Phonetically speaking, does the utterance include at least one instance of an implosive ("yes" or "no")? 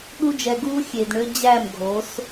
yes